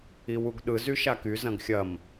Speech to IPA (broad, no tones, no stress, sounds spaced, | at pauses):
i w u ɡ ɗ ɯ z y ʃ a k y z ɐ̃ ɡ xʲ ɐ m